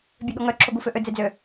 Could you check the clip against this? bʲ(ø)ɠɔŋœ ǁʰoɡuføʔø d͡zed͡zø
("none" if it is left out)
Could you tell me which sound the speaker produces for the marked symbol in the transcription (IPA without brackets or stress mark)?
ø